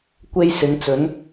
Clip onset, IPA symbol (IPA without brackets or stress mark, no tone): kʷ